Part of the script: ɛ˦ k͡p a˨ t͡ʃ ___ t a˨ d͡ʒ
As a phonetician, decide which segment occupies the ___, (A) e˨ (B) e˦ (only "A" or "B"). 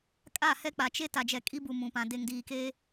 B